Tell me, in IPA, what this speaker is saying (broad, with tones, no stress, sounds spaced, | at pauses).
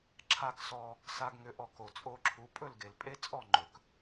ǁʰ a˥˩ k s ɔ˧ | s a˧ ɡ ŋ ʏ˩˥ ʔ ɔ˩ k o˩ t͡sʼ o˧ ǁʰ u˩˥ pʼ ɵ˥˩ l ɡ e˩ l pʼ e˥ t͡sʼ ɔ˥˩ ŋ͡ǃ ɵ˩ k